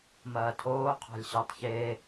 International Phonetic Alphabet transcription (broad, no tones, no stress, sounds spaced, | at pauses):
m ɐː tʰ oː qʰ ɑ̤ lʲ ɕ ɜ tˤ ç e